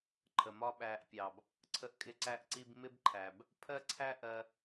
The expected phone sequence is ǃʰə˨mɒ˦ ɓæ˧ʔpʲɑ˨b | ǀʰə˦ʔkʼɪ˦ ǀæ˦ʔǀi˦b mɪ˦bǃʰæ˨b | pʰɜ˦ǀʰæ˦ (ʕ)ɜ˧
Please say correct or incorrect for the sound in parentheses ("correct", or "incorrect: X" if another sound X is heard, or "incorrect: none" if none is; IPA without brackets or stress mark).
incorrect: ʔ